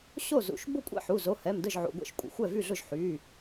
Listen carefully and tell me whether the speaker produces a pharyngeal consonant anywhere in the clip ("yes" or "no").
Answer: yes